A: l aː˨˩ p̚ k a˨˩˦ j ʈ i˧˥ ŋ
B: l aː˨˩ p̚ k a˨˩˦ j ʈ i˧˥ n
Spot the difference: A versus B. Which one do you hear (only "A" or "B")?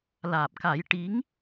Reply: A